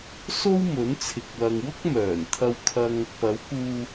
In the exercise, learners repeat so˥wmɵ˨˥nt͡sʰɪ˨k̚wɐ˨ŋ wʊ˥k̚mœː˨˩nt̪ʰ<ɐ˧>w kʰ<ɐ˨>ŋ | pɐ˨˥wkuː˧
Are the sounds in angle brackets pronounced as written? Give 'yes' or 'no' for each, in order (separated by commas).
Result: yes, no